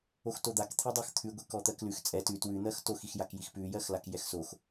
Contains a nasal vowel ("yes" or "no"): no